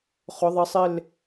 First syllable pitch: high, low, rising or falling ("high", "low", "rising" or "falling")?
rising